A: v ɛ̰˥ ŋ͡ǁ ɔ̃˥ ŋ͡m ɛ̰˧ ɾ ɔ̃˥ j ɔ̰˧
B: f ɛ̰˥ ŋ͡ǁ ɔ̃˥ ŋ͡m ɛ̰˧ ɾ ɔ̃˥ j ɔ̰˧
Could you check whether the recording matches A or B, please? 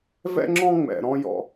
A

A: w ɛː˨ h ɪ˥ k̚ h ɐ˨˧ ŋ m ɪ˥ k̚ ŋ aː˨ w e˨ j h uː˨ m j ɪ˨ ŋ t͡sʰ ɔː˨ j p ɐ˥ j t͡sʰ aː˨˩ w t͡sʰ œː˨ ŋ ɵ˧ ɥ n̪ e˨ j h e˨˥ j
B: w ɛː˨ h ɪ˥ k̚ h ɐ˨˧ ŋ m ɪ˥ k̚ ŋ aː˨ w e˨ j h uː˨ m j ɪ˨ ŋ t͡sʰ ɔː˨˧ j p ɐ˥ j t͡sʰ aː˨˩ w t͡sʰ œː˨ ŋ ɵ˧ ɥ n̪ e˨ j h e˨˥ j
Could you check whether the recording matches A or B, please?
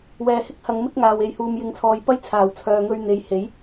A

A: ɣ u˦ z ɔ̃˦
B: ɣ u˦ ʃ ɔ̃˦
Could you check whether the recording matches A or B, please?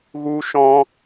B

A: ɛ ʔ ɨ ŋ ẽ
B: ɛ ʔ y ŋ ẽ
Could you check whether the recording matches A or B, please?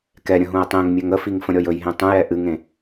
A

